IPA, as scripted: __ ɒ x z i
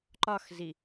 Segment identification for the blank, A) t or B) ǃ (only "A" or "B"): B